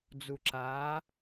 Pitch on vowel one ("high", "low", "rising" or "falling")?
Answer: low